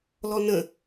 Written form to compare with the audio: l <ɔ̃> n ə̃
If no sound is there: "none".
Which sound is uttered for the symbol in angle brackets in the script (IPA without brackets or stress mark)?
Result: ɔ